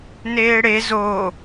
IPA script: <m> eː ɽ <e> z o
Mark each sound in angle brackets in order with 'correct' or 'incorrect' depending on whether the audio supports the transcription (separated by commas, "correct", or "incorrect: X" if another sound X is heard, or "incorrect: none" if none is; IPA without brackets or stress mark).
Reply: incorrect: n, correct